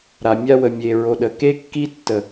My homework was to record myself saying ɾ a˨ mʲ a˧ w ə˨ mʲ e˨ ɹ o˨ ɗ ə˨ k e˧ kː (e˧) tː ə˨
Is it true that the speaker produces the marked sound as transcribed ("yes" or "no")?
no